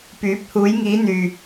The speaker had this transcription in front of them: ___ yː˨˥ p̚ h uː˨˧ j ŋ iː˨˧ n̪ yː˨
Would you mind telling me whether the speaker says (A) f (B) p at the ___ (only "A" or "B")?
B